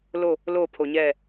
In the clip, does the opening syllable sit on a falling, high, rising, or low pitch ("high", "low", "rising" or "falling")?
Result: falling